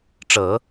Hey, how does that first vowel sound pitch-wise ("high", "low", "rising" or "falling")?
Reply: low